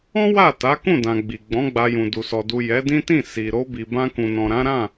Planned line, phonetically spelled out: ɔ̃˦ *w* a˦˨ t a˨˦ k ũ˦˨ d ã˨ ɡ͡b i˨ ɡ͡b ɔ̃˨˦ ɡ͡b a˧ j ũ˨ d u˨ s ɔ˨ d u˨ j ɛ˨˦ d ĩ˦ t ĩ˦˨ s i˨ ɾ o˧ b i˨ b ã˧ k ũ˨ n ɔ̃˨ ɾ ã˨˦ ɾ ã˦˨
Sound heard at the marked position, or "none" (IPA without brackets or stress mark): w